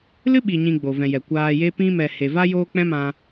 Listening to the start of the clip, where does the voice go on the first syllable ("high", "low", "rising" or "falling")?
high